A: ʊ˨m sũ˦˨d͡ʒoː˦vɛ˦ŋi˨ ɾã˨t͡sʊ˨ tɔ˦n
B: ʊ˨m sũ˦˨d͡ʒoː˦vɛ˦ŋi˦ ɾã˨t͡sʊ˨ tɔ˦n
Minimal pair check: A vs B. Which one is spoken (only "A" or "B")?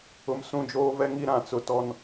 B